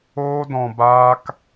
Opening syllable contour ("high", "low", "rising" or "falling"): high